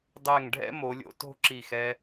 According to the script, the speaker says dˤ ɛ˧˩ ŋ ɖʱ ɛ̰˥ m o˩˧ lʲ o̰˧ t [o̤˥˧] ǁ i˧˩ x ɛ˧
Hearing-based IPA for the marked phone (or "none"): o̤˥˧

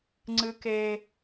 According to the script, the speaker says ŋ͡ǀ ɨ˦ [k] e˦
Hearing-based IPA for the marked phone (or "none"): k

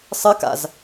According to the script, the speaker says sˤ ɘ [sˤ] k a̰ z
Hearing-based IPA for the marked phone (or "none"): none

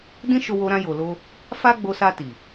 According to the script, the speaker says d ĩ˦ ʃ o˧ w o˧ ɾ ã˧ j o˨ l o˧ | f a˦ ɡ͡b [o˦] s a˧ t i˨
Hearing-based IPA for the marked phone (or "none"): o˧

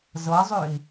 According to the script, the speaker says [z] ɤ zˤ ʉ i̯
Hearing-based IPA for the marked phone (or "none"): z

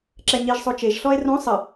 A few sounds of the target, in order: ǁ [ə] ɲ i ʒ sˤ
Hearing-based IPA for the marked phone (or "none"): ɛ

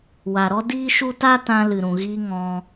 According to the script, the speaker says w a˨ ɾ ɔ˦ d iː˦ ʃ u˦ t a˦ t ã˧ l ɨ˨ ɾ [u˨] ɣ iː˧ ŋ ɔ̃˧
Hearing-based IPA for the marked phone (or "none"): ũ˨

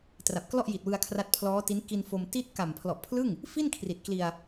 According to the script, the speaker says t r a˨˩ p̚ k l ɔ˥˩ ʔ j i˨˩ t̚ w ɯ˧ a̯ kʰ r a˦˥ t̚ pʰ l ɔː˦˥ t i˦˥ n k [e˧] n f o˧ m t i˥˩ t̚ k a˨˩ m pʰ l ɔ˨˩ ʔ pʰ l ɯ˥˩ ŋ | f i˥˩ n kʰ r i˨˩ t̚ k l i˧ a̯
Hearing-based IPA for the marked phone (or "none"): i˧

